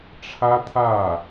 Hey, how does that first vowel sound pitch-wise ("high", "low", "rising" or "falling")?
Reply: high